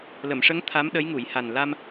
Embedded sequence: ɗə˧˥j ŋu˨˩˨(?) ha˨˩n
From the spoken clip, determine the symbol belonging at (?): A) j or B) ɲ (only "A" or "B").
A